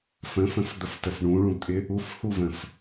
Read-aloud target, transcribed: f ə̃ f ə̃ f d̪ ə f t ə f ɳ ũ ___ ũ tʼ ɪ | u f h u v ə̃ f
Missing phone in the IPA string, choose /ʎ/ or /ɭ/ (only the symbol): ɭ